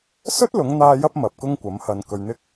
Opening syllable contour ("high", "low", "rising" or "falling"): high